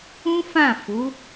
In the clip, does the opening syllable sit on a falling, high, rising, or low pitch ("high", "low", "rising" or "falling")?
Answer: high